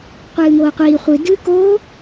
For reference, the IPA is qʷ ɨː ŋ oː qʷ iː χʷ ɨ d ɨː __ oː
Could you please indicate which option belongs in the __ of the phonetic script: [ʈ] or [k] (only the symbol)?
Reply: k